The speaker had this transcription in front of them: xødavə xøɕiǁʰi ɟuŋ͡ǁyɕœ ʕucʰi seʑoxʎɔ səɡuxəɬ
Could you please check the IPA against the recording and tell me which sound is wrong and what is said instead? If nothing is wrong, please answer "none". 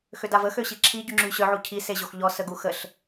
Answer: none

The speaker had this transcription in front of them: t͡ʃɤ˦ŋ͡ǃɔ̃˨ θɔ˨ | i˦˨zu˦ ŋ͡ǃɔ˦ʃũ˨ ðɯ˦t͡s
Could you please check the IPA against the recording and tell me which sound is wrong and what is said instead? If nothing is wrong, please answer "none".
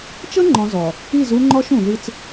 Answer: θ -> z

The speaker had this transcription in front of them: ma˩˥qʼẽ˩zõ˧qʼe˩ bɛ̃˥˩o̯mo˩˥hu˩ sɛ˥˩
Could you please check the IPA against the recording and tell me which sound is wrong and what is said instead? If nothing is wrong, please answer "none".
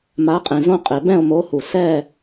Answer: none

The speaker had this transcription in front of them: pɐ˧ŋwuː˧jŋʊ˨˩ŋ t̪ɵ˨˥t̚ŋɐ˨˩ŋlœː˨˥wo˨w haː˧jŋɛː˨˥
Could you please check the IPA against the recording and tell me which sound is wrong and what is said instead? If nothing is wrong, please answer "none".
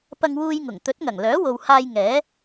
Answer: none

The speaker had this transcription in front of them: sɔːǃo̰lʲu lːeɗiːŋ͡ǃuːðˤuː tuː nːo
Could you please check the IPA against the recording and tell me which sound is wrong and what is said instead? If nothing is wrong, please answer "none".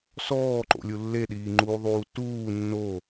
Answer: none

